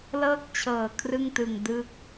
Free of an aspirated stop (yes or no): no